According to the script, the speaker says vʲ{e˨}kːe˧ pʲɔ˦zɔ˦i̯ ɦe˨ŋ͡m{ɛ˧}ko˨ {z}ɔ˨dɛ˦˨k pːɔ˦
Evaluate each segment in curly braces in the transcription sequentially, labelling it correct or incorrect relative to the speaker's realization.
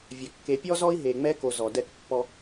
incorrect: ɛ˨, correct, correct

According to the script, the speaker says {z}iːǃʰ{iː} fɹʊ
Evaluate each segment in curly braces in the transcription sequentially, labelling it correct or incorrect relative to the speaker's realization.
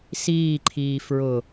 incorrect: s, correct

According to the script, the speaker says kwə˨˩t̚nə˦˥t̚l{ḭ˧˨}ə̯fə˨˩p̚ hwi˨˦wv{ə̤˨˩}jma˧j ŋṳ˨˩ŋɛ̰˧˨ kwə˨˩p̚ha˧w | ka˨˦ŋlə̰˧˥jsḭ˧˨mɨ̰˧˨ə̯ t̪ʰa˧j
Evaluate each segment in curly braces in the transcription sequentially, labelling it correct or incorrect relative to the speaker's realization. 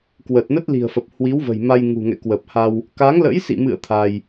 incorrect: i̤˨˩, correct

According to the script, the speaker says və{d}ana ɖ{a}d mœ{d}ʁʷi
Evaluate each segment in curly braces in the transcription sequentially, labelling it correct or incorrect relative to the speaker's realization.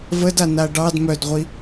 correct, incorrect: ɑ, correct

